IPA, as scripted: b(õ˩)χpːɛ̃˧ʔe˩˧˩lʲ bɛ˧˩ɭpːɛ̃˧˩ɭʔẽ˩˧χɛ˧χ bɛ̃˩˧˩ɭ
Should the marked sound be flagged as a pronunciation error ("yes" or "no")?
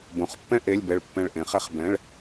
no